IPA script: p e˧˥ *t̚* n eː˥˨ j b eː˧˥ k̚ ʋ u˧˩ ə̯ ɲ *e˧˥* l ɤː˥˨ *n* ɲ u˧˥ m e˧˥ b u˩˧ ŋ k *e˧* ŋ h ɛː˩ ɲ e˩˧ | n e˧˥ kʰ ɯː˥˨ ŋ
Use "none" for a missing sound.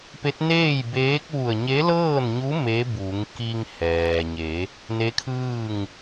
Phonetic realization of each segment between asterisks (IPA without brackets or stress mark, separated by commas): t̚, e˧˥, n, i˧